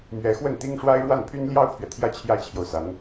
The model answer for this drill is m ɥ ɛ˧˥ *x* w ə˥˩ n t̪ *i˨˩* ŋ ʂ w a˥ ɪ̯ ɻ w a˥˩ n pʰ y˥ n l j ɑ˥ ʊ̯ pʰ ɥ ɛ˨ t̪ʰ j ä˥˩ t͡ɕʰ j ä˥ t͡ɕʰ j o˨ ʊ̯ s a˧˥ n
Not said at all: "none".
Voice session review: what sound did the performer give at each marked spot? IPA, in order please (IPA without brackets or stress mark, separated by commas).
x, i˥